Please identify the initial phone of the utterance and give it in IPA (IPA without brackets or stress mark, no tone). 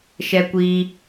ʃ